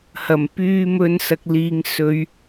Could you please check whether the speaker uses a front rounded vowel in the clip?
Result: yes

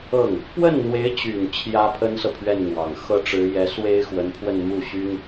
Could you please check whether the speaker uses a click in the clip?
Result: no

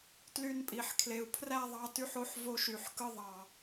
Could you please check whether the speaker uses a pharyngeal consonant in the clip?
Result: yes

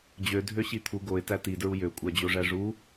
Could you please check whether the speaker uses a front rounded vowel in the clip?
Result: yes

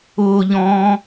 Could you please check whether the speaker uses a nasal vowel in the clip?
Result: yes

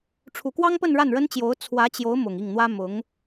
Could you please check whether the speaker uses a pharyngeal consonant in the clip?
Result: no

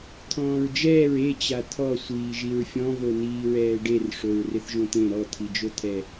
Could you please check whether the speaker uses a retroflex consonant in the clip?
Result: yes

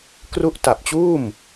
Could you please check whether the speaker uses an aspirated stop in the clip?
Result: no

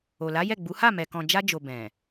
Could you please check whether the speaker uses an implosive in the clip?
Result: no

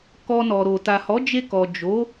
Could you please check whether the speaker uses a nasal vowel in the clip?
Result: no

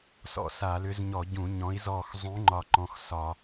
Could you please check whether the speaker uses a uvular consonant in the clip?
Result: no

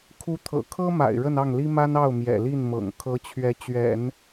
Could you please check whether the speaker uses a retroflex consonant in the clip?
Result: yes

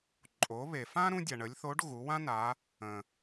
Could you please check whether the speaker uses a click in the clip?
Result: yes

